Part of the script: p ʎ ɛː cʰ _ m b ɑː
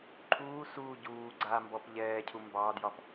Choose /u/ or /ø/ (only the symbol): u